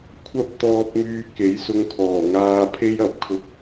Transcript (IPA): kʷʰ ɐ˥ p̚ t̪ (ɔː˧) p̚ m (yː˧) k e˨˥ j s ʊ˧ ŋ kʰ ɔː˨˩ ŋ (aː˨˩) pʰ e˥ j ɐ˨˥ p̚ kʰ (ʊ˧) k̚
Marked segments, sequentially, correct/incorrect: correct, correct, incorrect: aː˧, correct

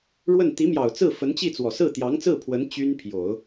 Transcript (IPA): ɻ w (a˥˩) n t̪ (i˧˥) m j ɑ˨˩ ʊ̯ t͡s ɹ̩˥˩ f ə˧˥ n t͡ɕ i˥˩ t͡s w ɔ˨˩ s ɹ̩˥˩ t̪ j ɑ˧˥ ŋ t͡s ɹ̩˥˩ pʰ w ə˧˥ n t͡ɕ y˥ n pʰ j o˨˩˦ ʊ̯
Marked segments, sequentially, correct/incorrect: incorrect: ə˥˩, correct

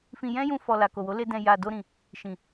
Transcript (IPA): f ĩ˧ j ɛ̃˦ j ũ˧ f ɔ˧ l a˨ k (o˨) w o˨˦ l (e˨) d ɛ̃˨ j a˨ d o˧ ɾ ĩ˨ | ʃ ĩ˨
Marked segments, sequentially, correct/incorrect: correct, incorrect: e˧

